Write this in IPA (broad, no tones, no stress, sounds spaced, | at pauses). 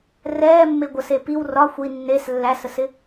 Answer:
r ɛː mː e ɡʷ ə s e p i w r ɒ xʷ i nː e s lː æ s ə s ɪ